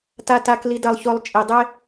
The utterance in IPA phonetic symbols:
ta˨ta˨k li˨ dɐ˨lˠço˨lˠ t͡ʃʼi˨dˤe˦

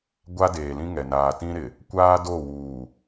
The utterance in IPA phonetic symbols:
ɡʷa˦deː˨lĩ˦ ŋɛ˨ naː˨tĩ˦ɾɪ˨ | kʷaː˦do˦˨wuː˨

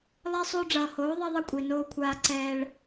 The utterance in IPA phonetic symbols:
lˠɛ˦sˤo˦ ɖ͡ʐʌː˨hoː˨˦ ðˤɛ˦ðˤʌ˦kʷʼi˨ noː˧kʷʰaː˧ ǀɛː˧ɭ

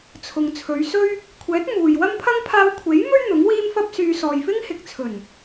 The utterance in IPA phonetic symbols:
t͡sʰʊ˨ŋ t͡sʰɵ˨˧ɥsɵ˥ɥ | kʷʰɛː˨˥t̚ muː˨j wɐ˥mpʰɐ˥ŋ pʰaː˧wkʷʰe˨˥jmɵ˥ɥ n̪ʊ˨˥ŋwiː˥mfɐ˥p̚syː˧ sɔː˨jfɪ˥ŋhɪ˨k̚t͡sʰɵ˨˩n

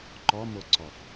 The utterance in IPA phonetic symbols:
ǃɔmoǀɔf

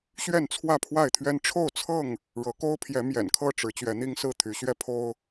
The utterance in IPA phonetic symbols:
ɕɥɛ˥˨nt͡sʰwä˥˨pʰwa˥˨ɪ̯t̪ʰɥɛ˦n ʈ͡ʂʰo˥˨ʊ̯t͡sʰɤ˥˨ŋ | ɻɤ˨˦ko˦ʊ̯pʰjɛ˨˦ mjɛ̰˨˩nkʰɤ˥˨ʈ͡ʂɻ̩˨˦ t͡ɕɥɛ˨˦n̪i˦ŋsɹ̩˥˨ t̪ʰy˨˦ɕɥɛ˦pʰo˦ʊ̯

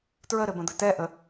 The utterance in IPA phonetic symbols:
tɹəɾɘbə̃d̪ɘ tɛʔə

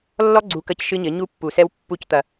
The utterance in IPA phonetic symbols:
lːɔ˦ɡ͡ǀu˨ kɐ˦cʃɨ˦ɲɘ˨˦ ɲu˦pːu˨sɛ˦w pːu˦˨ct̪ɐ˨

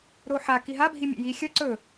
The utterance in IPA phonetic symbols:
ɾoħa kiɦa bʱimʲḛji xʲɐ ǀɵ

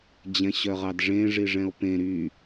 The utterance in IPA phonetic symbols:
d͡ʑɛ̃ɕœʁɑdʐẽ ʐiʐɛ̃o̯pẽ ɾy

